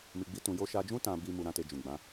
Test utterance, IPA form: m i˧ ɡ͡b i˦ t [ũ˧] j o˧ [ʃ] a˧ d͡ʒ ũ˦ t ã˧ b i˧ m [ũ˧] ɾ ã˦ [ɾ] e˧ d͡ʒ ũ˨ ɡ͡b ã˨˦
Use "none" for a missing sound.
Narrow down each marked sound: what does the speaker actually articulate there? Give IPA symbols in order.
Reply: ũ˧, ʃ, u˧, t

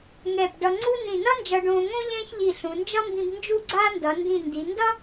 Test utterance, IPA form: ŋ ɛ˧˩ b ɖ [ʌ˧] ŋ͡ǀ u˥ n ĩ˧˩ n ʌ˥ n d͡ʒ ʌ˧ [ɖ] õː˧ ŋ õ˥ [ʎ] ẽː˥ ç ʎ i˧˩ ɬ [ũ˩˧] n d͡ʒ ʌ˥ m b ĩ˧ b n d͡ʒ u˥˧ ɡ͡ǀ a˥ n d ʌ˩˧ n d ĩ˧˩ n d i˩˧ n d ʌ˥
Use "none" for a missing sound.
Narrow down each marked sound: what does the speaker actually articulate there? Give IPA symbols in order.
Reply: ʌ˧, ɖ, ʎ, ũ˩˧

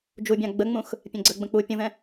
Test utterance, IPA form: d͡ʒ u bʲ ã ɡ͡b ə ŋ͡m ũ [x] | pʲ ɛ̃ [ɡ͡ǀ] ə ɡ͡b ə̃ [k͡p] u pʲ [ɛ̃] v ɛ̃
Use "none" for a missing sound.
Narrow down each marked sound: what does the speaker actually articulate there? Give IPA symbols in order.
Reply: x, ɡ͡ǀ, k͡p, ə̃

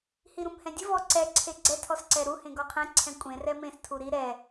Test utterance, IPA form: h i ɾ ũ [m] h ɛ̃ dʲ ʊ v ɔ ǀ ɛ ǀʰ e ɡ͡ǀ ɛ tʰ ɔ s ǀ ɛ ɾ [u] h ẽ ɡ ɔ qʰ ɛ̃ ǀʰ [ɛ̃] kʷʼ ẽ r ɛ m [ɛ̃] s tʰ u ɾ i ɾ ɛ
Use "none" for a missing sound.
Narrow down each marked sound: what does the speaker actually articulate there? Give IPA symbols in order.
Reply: m, u, ɛ̃, ẽ

